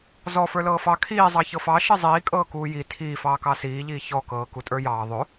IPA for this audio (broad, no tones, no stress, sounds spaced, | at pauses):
z ɔ f ə˞ l ɤː f ɑ kʰ iː zˤ ɑ ç ɤ f ɑ ʃ i zˤ iː kʼ ɤː k uː j i tʰ iː f ɑː k ɑ s iː ʎ iː ç ɔ k ɤː k u tʼ ə˞ j ɑː ðˤ ɵ